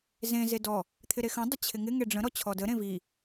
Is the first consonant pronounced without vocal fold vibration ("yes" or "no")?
no